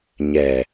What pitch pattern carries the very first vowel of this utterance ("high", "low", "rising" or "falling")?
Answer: low